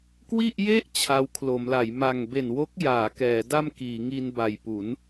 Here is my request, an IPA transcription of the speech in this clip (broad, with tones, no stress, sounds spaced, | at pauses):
k w i˥˩ ʔ j e˥˩ ʔ t͡ɕʰ a˧ w kʰ l o˩˦ m l a˩˦ j m a˨˩ ŋ b e˨˩ n w o˦˥ k̚ j aː˩˦ k ɛː˩˦ d a˥˩ m k iː˩˦ ŋ i˧ n b a˨˩ j p u˩˦ n